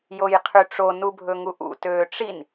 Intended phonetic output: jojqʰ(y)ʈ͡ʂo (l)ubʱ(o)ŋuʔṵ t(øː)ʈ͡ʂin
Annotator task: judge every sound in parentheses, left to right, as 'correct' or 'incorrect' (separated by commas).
correct, incorrect, incorrect, correct